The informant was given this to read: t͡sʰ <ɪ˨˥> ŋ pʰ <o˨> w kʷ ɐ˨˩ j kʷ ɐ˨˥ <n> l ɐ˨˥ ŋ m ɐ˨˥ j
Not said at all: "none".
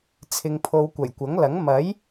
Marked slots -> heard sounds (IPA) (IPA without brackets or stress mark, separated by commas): ɪ˧, o˧, ŋ